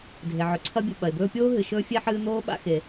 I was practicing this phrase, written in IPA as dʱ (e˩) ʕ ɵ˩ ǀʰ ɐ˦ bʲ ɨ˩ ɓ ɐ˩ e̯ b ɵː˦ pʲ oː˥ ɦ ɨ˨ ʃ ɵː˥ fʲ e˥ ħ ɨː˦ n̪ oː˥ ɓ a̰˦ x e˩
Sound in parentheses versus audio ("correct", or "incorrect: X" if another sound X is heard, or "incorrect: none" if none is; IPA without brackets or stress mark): correct